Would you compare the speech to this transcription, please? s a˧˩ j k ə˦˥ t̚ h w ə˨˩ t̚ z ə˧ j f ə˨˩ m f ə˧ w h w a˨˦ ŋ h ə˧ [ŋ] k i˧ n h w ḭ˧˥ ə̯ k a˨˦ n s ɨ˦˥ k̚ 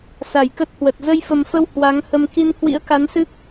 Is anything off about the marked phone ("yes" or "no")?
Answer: yes